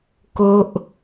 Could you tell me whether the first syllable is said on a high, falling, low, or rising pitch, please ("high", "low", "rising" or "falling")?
high